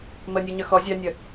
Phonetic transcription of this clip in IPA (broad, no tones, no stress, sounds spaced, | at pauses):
m ə nʲ u ɲ œ x ɔ zʲ a nʲ ɐ